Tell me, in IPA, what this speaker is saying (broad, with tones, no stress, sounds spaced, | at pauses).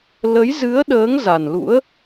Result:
l ə˨˦ j z ɨ˨˦ ə̯ ɗ əː˨˦ ŋ z a˨˩ n l ṵ˧˥ ə̯